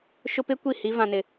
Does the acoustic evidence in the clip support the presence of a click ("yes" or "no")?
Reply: no